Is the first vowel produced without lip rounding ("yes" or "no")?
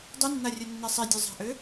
no